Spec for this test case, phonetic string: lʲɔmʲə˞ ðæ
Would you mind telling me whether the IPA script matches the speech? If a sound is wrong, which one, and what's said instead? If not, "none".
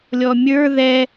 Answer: æ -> ɛ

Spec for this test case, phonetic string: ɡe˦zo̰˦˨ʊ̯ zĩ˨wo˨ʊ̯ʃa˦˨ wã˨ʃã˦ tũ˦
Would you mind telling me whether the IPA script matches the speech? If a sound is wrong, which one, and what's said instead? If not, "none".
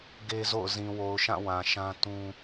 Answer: a˦˨ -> ã˦˨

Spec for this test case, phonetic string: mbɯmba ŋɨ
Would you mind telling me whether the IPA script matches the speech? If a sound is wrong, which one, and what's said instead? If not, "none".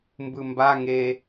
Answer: ɨ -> e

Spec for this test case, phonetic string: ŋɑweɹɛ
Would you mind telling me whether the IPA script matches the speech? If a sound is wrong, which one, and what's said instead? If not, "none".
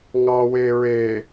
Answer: ɛ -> e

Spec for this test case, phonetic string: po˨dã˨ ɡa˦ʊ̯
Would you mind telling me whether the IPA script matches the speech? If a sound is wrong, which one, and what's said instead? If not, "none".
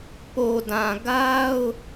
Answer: none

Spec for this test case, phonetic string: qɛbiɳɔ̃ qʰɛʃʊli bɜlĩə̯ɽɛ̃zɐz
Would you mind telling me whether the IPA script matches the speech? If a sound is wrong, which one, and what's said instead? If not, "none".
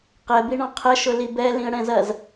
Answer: ɜ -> ɛ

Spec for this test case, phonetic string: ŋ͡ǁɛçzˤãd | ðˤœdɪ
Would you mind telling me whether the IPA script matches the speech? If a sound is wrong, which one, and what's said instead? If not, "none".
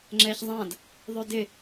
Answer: none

